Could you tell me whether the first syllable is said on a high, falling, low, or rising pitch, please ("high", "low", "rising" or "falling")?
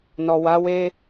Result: low